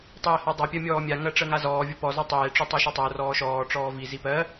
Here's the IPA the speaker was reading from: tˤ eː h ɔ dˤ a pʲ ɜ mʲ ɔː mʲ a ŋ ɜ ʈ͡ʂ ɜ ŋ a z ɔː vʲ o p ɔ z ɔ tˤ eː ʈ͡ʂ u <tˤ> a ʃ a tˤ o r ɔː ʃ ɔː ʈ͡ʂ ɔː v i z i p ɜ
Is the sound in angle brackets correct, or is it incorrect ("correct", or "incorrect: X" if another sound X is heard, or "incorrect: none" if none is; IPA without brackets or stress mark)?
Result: correct